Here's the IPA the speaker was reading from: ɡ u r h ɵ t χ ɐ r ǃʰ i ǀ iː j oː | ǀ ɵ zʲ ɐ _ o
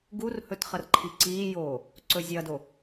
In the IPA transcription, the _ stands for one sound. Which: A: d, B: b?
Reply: A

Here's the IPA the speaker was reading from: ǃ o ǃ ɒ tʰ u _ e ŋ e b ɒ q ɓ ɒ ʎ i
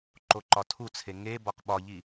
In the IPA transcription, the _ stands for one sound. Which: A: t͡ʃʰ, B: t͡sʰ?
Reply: B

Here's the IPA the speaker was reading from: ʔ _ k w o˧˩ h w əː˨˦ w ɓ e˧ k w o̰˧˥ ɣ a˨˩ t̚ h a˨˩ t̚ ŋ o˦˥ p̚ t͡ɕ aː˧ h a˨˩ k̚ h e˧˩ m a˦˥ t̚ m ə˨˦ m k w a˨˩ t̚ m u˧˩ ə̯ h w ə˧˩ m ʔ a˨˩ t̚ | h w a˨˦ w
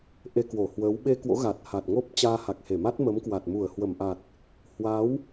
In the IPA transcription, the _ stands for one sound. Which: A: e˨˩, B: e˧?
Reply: B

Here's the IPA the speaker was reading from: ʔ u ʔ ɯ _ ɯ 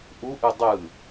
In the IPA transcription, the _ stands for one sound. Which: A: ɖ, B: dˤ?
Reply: B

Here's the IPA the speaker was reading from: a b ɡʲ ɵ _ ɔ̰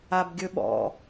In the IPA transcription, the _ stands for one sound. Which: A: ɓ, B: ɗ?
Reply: A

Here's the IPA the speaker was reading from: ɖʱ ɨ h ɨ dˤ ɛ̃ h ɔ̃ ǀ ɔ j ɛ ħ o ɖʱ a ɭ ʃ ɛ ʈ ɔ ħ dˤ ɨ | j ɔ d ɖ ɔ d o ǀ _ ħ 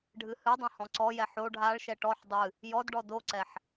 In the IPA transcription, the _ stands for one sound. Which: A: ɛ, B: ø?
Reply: A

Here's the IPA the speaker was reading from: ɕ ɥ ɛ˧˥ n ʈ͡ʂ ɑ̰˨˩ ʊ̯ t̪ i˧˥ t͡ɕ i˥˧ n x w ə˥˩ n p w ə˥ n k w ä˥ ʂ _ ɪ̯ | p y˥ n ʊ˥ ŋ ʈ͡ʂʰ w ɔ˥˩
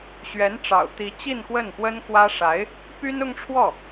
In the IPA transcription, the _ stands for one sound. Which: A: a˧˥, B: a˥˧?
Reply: A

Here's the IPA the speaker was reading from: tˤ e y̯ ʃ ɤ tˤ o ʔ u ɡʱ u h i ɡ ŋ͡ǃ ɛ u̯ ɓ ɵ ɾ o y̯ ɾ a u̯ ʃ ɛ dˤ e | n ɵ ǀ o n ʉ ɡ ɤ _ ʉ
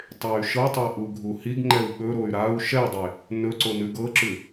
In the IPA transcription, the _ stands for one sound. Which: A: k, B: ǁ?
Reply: B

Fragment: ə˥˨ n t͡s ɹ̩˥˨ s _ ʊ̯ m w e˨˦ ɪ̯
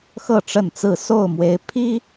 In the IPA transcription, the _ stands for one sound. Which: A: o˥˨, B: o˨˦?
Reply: A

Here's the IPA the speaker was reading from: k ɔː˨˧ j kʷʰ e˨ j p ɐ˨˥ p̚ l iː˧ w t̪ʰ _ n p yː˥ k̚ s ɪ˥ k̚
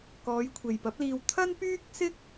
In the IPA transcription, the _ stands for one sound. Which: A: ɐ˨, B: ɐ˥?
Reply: B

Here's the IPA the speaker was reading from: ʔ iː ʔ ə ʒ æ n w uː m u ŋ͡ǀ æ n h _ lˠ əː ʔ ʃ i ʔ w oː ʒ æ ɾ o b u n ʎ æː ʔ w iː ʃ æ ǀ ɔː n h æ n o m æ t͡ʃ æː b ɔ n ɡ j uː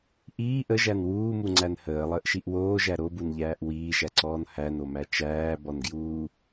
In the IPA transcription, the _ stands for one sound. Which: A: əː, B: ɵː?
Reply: A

